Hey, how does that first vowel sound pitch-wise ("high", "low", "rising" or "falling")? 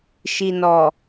low